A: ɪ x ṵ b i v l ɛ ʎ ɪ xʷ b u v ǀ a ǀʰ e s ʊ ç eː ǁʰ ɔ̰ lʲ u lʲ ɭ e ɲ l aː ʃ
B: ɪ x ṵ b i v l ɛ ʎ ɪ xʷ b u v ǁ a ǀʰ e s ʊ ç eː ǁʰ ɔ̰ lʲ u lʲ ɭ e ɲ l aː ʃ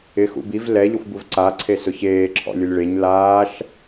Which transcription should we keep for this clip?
A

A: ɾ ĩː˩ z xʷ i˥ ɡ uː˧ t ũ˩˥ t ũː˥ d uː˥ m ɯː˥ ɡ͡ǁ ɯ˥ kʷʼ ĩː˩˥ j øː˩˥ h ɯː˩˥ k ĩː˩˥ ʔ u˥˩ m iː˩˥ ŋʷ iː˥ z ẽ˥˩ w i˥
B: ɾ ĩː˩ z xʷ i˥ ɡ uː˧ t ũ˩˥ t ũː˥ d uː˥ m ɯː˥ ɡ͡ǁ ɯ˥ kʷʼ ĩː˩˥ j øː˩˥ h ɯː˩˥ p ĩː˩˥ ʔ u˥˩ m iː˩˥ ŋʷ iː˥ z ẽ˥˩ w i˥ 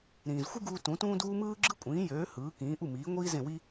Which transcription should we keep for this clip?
A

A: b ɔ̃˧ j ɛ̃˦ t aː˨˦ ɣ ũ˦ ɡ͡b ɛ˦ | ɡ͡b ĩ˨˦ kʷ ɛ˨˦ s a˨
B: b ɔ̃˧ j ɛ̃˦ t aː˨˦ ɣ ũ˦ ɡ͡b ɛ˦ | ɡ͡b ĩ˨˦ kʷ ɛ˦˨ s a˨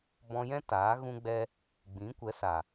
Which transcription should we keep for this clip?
A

